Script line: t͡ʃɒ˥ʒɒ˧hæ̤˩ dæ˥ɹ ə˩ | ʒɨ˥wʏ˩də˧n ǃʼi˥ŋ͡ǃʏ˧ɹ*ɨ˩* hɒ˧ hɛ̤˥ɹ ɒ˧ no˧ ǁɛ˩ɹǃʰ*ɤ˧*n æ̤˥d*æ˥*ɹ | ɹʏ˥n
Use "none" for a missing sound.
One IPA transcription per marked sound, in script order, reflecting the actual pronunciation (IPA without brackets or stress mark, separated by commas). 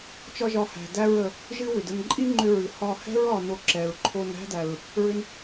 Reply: ɨ˩, o˧, æ˩